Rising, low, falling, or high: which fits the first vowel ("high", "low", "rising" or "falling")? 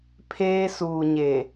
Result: high